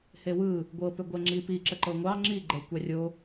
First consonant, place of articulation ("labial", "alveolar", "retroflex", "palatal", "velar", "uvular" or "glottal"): glottal